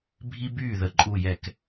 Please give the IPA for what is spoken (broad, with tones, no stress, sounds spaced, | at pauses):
bʱ i˦ b yː˥˩ ð ə˨˦ ǃʼ u˧˩ j ɛ˧˩˧ k